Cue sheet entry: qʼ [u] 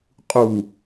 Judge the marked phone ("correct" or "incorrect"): correct